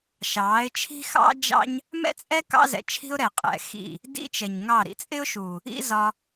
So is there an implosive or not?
no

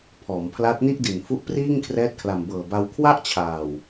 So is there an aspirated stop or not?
yes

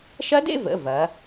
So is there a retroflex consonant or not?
no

